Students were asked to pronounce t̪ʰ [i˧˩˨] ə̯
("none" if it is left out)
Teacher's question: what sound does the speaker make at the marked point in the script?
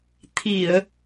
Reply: i˧˩˨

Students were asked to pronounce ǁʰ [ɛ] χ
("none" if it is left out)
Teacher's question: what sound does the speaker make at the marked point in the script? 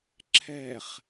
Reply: ɛ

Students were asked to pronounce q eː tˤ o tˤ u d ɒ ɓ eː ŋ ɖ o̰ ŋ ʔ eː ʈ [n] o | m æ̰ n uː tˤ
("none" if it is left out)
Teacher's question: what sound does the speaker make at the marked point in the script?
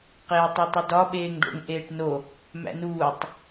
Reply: n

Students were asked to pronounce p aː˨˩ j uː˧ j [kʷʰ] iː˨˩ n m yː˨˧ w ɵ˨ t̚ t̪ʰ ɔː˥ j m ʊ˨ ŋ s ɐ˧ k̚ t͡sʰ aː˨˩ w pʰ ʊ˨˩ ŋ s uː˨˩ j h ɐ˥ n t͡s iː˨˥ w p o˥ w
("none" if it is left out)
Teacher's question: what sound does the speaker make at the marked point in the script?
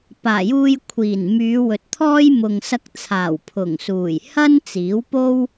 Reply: kʷʰ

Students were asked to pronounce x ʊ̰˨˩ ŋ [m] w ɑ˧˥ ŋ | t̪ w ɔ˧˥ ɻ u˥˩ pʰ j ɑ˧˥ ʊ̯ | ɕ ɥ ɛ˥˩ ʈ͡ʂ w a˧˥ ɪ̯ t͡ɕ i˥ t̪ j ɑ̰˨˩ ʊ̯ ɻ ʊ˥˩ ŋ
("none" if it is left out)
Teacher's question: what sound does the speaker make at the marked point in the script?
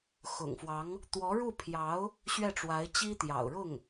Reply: f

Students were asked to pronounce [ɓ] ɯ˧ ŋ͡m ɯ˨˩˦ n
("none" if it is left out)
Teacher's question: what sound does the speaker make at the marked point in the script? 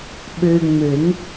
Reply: ɓ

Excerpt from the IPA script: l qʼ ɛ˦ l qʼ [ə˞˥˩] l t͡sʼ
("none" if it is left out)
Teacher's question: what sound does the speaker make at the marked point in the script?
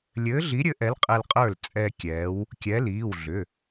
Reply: ə˞˥˩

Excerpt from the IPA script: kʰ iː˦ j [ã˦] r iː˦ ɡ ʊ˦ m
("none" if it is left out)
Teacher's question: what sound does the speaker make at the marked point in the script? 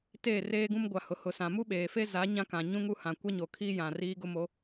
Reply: ã˨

